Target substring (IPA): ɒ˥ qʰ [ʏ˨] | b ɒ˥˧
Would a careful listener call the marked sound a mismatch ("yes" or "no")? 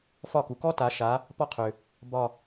no